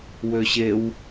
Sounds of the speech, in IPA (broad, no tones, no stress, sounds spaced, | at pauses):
w ø ɕ e w